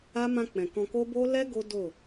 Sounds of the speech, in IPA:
a˦ m ã˧ k͡p ɛ̃˨ k ɔ̃˧ k o˦ b o˦ l ɛ˦ ɡ o˦ d o˦˨

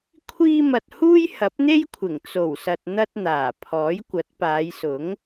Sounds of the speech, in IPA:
kʷʰ iː˧ m ɐ˨ t̚ h uː˥ j h ɐ˨˥ p̚ n̪ e˥ j kʷʰ ɪ˨˩ ŋ t͡s o˨˩ w s ɐ˨ t̚ n̪ ɐ˧ t̚ n̪ aː˨˩ pʰ ɔː˨˥ j kʷ ɐ˨˥ t̚ p aː˨˧ j s ʊ˨˥ ŋ

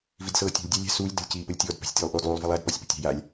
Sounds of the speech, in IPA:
v i d s ɤː tʲ o̤ lʲ dʲ æ lʲ æ̤ s uː lʲ d ə̤ lʲ c iː p ə lʲ tʲ ɔː d p æ̤ sʲ tʲ uː lˠ ʔ oː d lˠ uː lˠ v a lˠ æ d p ɔ sʲ p ə̤ tʲ æ̤ j a lʲ

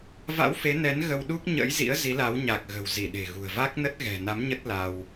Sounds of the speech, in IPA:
v a̰˧˥ w f e˨˦ n ɛ˨˦ n ɣ ə˧ w ɗ u˦˥ k̚ ɲ ə̰˧˥ j z ḭ˧˥ ə̯ z i˨˦ l a˨˦ w ɲ a˨˩ k̚ ɣ ə̤˨˩ w z i˧˩ ɗ e̤˨˩ ɣ ṳ˨˩ ə̯ v a˦˥ k̚ n ə˦˥ t̚ ɣ ɛ̤˨˩ n a˨˦ m ɲ ə˦˥ t̚ l a˧ w

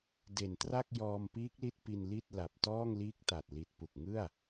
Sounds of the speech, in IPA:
d e˨˩ n t r a˥˩ k̚ j ɔː˧ m p iː˦˥ k̚ l i˥˩ t̚ p i˧ n l i˥˩ t̚ l a˨˩ p̚ t ɔː˥˩ ŋ l iː˦˥ k̚ t a˨˩ t̚ l i˨˩ t̚ p u˨˩ k̚ ŋ ɯ˥˩ a̯

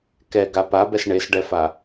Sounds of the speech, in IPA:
k ɛ ɡ a p a b ɛ s ɳ e s ɖ ɛ f a

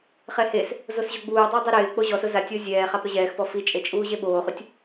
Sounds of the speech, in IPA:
χ ɛ h e s | z o s ʑ o ɡ͡b uː dˤ ɪː dˤ i ɾ ɪː k͡p o ʑ ɔ s ʊ z a tʲ o zʲ ɛː χ a p ɾ ʊ ʑ ɛː x p ɔ f i t͡ʃʼ e t͡ʃʼ uː ʑ e ɓ oː χ u tʲ

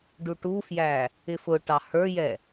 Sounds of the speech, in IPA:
ɖ u ʈ u f j æ | ɪ f ʊ ʈ ɑ h ə˞ j ɛ

